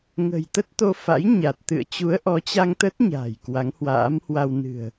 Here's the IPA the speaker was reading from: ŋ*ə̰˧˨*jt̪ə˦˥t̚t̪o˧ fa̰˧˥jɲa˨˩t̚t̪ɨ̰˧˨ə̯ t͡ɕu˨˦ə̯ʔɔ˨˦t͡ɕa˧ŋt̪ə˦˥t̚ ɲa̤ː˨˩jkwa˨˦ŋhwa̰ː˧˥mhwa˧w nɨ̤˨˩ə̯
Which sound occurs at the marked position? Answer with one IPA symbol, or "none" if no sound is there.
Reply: ə̤˨˩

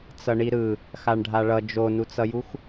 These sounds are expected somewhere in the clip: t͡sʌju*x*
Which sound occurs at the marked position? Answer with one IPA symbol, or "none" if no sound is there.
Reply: x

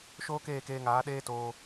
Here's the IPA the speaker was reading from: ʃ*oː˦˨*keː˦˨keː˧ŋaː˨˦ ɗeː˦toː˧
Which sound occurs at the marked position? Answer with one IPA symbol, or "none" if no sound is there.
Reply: oː˦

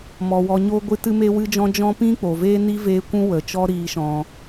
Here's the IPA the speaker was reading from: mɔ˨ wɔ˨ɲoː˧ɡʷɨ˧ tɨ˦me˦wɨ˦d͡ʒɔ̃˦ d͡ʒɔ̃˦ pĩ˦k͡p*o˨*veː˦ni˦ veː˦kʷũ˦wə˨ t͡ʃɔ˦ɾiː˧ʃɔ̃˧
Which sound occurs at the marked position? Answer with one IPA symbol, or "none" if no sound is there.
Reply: o˨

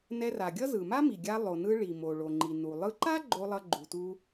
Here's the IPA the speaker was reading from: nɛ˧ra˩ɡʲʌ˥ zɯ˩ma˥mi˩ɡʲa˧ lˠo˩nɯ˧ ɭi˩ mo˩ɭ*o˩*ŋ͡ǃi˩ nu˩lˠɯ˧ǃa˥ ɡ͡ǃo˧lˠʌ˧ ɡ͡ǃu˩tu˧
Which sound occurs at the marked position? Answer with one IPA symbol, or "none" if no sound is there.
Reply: o˩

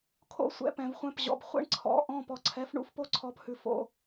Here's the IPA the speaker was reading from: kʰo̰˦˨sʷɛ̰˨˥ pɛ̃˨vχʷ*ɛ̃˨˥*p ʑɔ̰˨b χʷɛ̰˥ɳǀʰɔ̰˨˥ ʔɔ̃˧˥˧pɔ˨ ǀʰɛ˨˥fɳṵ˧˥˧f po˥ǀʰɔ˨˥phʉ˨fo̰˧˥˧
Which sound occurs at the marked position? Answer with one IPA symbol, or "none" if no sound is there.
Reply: ɛ̃˧˥˧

